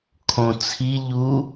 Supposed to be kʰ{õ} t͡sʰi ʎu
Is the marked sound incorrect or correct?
correct